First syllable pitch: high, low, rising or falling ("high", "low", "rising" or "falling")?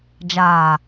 low